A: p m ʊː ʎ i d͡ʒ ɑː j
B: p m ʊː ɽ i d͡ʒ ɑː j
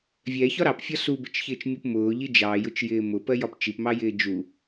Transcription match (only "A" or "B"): A